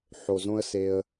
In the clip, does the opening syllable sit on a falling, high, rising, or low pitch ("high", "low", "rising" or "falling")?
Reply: low